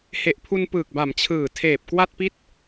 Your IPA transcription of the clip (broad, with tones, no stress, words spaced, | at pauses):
he˨˩ʔpʰu˧n pɯː˨˩k̚ba˩˦mt͡ɕʰɯː˨˩tʰeː˨˩p̚ kwa˥˩t̚pi˥˩t̚